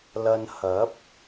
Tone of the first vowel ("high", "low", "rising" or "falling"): low